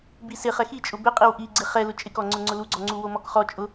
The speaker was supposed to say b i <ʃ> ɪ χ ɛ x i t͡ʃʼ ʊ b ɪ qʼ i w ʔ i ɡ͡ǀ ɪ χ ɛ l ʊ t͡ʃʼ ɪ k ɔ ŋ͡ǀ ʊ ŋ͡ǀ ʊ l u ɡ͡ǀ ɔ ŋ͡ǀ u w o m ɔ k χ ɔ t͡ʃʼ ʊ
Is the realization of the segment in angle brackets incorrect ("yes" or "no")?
yes